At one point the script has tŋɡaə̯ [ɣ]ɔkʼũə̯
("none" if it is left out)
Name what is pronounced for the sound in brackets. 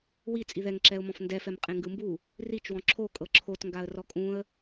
r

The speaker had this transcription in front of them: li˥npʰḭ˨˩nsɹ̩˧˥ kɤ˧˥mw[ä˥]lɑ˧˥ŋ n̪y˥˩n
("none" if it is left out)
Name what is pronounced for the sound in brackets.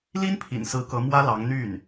ä˥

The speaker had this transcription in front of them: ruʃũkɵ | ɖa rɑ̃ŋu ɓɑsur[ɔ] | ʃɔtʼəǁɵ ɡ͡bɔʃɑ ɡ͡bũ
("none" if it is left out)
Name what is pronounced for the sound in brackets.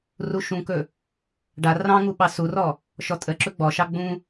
ɔ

